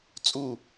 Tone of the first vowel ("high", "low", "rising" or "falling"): falling